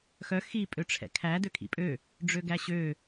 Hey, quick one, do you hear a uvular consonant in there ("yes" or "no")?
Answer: no